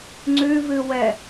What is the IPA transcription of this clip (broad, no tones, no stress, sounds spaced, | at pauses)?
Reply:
ŋ͡ǀ ʉ v ɨ w ɛ